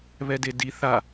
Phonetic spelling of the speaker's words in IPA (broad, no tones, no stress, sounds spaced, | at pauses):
β ɛ d e d i θ a